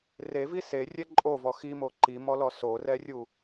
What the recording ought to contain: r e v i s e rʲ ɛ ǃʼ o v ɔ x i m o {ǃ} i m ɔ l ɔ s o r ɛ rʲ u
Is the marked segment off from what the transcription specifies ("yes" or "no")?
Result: no